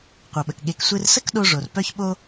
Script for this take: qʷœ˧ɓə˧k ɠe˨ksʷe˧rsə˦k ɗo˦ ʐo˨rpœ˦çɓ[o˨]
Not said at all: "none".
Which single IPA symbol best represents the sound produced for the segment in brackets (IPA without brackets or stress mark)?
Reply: o˦